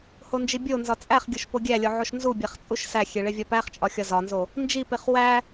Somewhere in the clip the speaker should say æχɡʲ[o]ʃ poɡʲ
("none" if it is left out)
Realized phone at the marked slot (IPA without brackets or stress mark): o